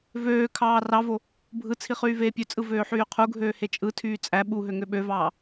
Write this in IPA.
v øː kʰ ɑː r ɑ v o | bʱ ɯ t͡sʰ i χ yː v eː pʲ ø t͡sʼ ɯ v øː ħ yː qʰ u ɡʱ øː h e t͡ʃʼ ɯ tʰ yː t͡sʼ æ ɓ u ɦ ø ŋ ø ɓ ø v ɑː

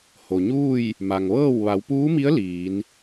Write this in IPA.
h o˩ ɲ uː˥˨ j | m a˩ ŋ ʋ ɤː˥˨ w ʋ a˩˧ w p uː˧˥ m i˧˥ ə̯ l iː˩˧ n

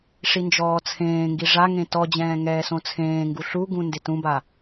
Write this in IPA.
ʂ i n d͡ʒ ɔː t͡sʰ ẽː ŋ ɡ i ʐ a ŋ ẽ t ɔ d͡ʑ ɛ̃ː ŋ ɛː s õ t͡sʰ ẽː ŋ ɡ u ɬ u ɡ ũ n d ɪ t ũ b a

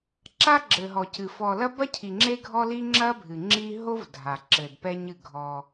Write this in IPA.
ǁ a˦ ɡ͡ǁ ɘ˨ ɦ ɔ˨ c ɨ˨ f ɔ˨ l ɐ˦ b ɐ˦ cʰ i˨ ŋ͡ǁ e˦ ɡʱ ɔ˦ l i˦ ŋ͡ǁ ɐ˦ bʱ ɨ˨ ŋ͡ǁ i˦ ɦ o˦ v dʱ a˨ ǁ ɘ˨ d p ɛ˦ ɲ ɨ˦˨ ɡʱ ɔ˦

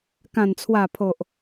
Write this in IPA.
k ã˨˩ n t͡sʰ w a˨˩ pʰ o˨ ʔ

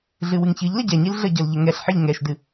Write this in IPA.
ɮ ɨ w ɨ ŋ ç ɨ ʎ l ə ɟ ɛ ɲ i l ɮ ə ɟ ɤ l ʎ ə ŋ ɛ ɬ ħ ɪ ʎ ŋ ɛ ʃ d ɨ

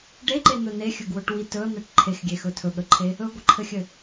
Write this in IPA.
ɖ e ǃ e n̪ ɵ n e xʲ ɵ ɡ w ɵ ʈ w i t ɵ ə̯ n̪ ɛ ʈ ǃʰ e x ɡʲ e x ɵ tʰ ɵ ɠ ə ǃʰ e | ɵ ɡʷ ɘ ǃʰ ɘ xʲ ɘ

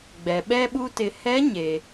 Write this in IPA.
ɡ͡b ɛ˩ ɓ ɛ˥ ɓ u˥ t ɪ˧ h ɛ˧˥ ɲ e˩

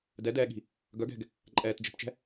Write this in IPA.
d ɛ d ɛː ɠ i̤ | ɡ œ ɡ ɛ̤ ɡ | ǃʼ ɛː t d͡ʒ ɛ̤ p t͡ʃ ɛ̤

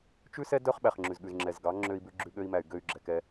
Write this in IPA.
t͡ʃ ʉ˦ s ɛ˦ d œ˦ χ ɓ æ˨ χ ŋ͡ǁ ʉ˨ z ɠ ʉ˨ z ŋ͡ǁ ɛ˨ z ɡ ɑ˨˦ ŋ͡ǁ ø˧ i̯ b ʉ˧ ɡ͡ǁ ʉ˧ ɠ ø˧ i̯ m æ˨ y̯ ɡ ø˧ y̯ ɡ͡ǁ ɛ˨ k ɛ˧

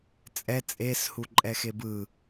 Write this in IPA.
t͡sʼ ɛ t͡sʼ e s h u ǃʼ ɛ x e b ɯ

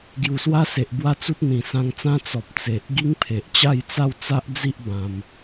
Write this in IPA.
ɡ j u˨˩ s w a˦ s e˨ ʔ b w a˦ t͡s u˦ t̚ n̪ ĩ˨˩ s ã˧ ŋ t͡s ã˦ t͡s ɔ˨ p̚ t͡s e˨ ʔ ɡ i˦ ŋ pʰ e˨ ʔ t͡ɕ a˥˧ j t͡s a˥˧ w t͡s a˦ ʔ d͡z i˦ ʔ b ã˧ m

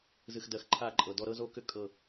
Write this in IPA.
z ɨ˨ x d ɜ˨ x ǃʰ a˦˨ ǃʼ ɤ˨ d ɔ˦ ɾ ɤ˦ z o˦ k ʏ˦ kʼ ɤ˦˨

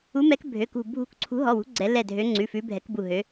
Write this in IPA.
u˨˦ m ɛ˨˦ k bʱ ø˩˧˩ k ṳ˧˩ bʱ ṳ˧˩ k ǀʰ ṳ˨˦ ɦ ɔ˩˧˩ w ṳ˨˦ ɡ͡ǀ ɛ˨˦ l ɛ˧˩ dʱ ø˨˦ ŋ͡ǀ ʉ˩˧˩ f ʉ˨˦ bʱ ɛ˨˦ k b u˧˩ ɦ ø˨˦

